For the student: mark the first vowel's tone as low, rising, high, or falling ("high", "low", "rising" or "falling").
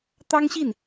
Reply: high